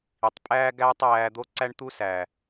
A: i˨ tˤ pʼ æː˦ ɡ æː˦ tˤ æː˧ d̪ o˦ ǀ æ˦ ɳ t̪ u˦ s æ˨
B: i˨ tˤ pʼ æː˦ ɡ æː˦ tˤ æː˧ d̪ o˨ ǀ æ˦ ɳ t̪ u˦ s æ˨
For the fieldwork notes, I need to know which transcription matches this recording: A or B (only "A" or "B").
A